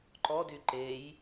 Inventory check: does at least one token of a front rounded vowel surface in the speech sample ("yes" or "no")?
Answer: yes